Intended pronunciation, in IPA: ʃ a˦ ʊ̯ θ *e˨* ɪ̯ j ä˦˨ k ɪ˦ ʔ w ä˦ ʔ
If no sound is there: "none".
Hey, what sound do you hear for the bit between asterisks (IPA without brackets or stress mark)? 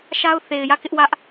e˨